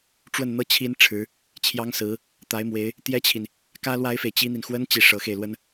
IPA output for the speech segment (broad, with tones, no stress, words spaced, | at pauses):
ʈ͡ʂwə˥˩nn̪ɤ˥ t͡ɕʰi˥n ʈ͡ʂʰɻ̩˧˥ | t͡ɕʰjɑ˥ŋ sɹ̩˧˥ | t̪a˧˥ɪ̯mwe˧˥ɪ̯ | t̪jɛ˥t͡ɕʰi˨n | kä˥lwa˥ɪ̯fe˨ɪ̯ t͡ɕi˥n̪i˨n xwə˥n t͡ɕi˥˩ ʂɤ˧˥xe˧ɪ̯lwə˥n